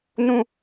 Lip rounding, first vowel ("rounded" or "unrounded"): rounded